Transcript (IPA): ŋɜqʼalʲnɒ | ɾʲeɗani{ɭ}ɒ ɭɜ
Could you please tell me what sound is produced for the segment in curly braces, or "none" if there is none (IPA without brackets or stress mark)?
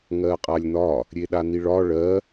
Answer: ɭ